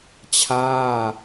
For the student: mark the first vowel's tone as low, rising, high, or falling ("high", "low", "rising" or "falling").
falling